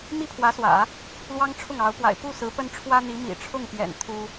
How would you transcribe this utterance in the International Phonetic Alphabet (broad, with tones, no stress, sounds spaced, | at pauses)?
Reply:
m i˥˩ pʰ w ä˧˥ s w ä̰˨˩˦ | l w ɑ˥ ŋ ʈ͡ʂʰ ʊ˥˩ ŋ ɑ˧˥ ʊ̯ p w a̰˨˩ ɪ̯ p u˥˩ s ɹ̩˧˥ p ə˥ n ʈ͡ʂʰ w ä˥ n̪ i˧˥ m ḭ˨˩ ʈ͡ʂʰ ʊ˥˩ ŋ p j ɛ̰˨˩ n t̪ʰ u˥